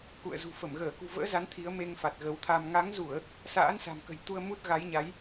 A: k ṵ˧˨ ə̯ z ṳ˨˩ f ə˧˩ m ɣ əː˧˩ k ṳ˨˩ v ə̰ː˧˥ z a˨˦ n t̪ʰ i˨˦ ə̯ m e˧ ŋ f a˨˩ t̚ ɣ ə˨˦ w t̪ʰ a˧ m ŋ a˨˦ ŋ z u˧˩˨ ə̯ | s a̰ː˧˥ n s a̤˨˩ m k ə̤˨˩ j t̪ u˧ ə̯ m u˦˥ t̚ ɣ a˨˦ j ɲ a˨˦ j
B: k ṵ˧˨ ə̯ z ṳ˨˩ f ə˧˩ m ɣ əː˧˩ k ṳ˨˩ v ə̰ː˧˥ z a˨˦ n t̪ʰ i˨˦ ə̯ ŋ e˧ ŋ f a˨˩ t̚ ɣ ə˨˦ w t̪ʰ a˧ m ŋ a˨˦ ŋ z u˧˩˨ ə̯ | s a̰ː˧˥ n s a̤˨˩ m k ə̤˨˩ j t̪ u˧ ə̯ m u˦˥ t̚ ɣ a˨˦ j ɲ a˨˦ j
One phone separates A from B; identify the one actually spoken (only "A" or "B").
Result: A